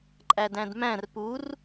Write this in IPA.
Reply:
ǃʼ æ d æ̃ d m æ̃ r p u r

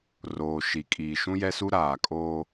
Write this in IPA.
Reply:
r oː˨ ʃ i˨ kʼ iː˨ ʃ ũ˦ j ɛ˦ s u˦ ɾ aː˨ kʼ oː˦

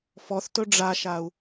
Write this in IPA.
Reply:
f ɔ θ t ɵ ɖ͡ʐ a ʃ a u̯

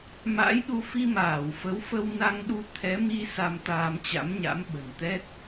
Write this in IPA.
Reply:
m a̰ː˧˥ j ɗ u˧ f i˧ m aː˧˩ w f ə˨˦ w f ə˧ w n a˧ ŋ ɗ u˧ t̪ʰ ɛ˨˦ m i˧ s a˧ m t̪ aː˧ m t͡ɕ a̰˧˥ m ɲ a̰˧˥ m ɓ ə̤˨˩ n t̪ ɛ˦˥ t̚

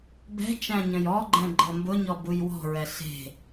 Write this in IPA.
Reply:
b ɛ̤ t͡ʃ æ̃ ɲ ə̃ j ɔ ɡ͡ǃ ɛ̃ ɡ͡ǃ ɤ m b ʊ ɲ ɔ b u j w ɔ̤ ɹ ɛ ɬ e̤

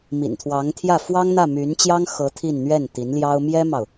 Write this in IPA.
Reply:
m ḭ˨˩ n t̪ʰ w ɑ˧˥ ŋ t̪ʰ j ä˥˩ f w ɑ˥ ŋ n̪ ä˥˩ m y˧˥ n t͡ɕ j ɑ˥ ŋ x ɤ˧˥ t̪ʰ i˥˧ n n̪ ɥ ɛ˥˩ n t̪ i˧˥ n l j ɑ˥ ʊ̯ m j ɛ˥ m ɑ˨ ʊ̯

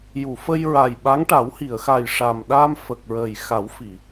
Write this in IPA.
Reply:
j u˨˩˨ f ə˧ j ɹ a˨˩ j ɓ a˧˥ ŋ ʈ a˨˩˦ w h i˨˩˨ ə̯ x a˨˩ j ʂ a˨˩ m ɗ a˧ m f ə˨˩ k̚ ɹ əː˨˩ j x a˨˩˦ w f i˨˩˨

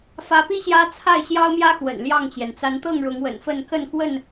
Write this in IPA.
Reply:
f ä˨˦ p i˦ ɕ j ä˦ t͡sʰ a˥˨ ɪ̯ ɕ j ɑ˦ ʊ̯ m j ä˦ x w ə̰˨˩ n l j ɑ˥˨ ŋ t͡ɕ j ɛ˩ n t͡s a˨˦ n t̪ ɤ˥˨ ŋ ɻ ʊ˨˦ ŋ w ə̰˨˩ n f ə˥˨ n k ə˥˨ n k w ə˥˨ n

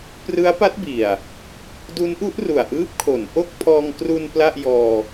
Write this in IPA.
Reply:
p r ɯ˦˥ a̯ p a˦˥ t̚ b i˨˩ a̯ | d u˦˥ n ʔ u˦˥ ʔ r u˨˩ a̯ ʔ ɯː˦˥ p̚ kʰ o˩˦ n ʔ o˥˩ k̚ pʰ ɔː˧ ŋ k r u˧ n p l a˥˩ ʔ j ɔː˧

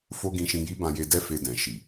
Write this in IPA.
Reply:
f o˦ ɡ ĩ˧ ʃ ĩ˧ j i˦ b ã˧ j e˧ d ɛ˦ f e˧ d ɛ̃˨ ʃ i˨

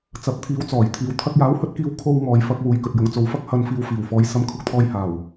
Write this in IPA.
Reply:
t͡s ɐ˨˥ p̚ t̪ʰ iː˨˧ w t͡s ɔː˨˩ j t̪ʰ iː˨ w t̪ʰ ɐ˧ k̚ j aː˨˥ w h ɵ˧ t̚ k iː˧ w kʰ o˧ w ŋ ɔː˨ j f ɐ˧ k̚ w uː˨ j k ɵ˨ t̚ j ʊ˨˧ ŋ t͡s o˨ w f ɐ˥ k̚ h ɐ˨˧ n f iː˨ w f iː˨˩ w f ɔː˨˧ j s ɐ˨˥ m kʰ ʊ˨ k̚ t̪ʰ ɔː˧ j h aː˨˩ w

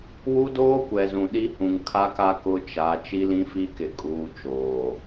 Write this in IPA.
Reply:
w u˦ d oː˦ kʷ ɛ˨ z ũ˨ ɗ i˦ h ũ˨ ŋ kʰ a˦ k a˦ k ʊ˦ t͡ʃ a˨˦ t͡ʃ i˦ l ĩ˦ f i˦ k ɪ˨ kʼ uː˦ t͡ʃ oː˨

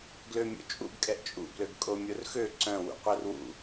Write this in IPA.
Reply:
ɡ l ø mʲ o̰ t͡ʃʼ ṵ ɡ kʼ ɛ ʔ t͡ʃʼ ṵ b l ø ɡ kʼ o mʲ o r x ø ǀ œ̃ w ṵ qʷ œ r w ṵ

